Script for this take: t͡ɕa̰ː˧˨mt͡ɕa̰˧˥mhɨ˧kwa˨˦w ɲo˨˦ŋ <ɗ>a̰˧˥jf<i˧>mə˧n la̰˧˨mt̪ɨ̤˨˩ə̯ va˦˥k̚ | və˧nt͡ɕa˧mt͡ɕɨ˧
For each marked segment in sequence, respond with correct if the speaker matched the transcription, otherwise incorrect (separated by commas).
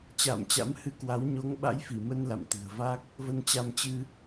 incorrect, incorrect